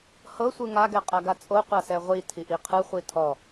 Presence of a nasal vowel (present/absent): absent